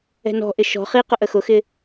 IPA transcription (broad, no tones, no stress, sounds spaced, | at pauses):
ɛ̤ n ɔ̤ ʔ ɪ ʃ ɔ̤ χ i q ʊ ʔ ə x ʊ x ɪ